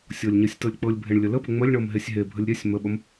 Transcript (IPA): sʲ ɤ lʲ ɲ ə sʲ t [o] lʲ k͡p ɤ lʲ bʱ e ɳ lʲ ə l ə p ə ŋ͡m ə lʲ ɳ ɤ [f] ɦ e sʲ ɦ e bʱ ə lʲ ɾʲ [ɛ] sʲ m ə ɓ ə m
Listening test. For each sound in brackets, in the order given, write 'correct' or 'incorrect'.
incorrect: ɤ, incorrect: m, correct

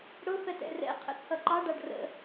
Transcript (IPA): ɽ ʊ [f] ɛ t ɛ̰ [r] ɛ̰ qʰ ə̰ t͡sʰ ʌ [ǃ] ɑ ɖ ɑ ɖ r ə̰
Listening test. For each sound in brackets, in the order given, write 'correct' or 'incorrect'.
correct, correct, correct

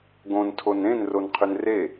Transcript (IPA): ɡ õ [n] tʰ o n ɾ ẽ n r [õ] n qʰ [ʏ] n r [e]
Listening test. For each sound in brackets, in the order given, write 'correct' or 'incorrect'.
correct, incorrect: o, correct, correct

